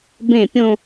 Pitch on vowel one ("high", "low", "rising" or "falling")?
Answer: falling